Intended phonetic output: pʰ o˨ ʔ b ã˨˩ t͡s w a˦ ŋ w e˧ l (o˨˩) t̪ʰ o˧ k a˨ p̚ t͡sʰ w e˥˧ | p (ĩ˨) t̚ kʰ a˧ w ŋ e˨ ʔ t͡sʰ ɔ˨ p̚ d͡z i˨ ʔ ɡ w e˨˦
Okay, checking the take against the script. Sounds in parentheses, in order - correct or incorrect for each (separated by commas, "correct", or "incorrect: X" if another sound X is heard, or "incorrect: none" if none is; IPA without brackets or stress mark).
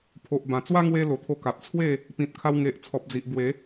correct, correct